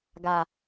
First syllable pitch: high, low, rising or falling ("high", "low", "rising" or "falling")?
low